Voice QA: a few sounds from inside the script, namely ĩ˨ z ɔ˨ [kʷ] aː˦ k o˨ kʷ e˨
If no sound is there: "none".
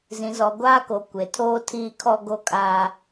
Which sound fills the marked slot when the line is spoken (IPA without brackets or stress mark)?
ɡʷ